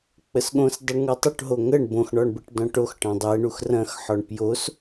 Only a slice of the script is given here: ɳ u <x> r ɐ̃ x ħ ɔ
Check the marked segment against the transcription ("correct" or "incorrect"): correct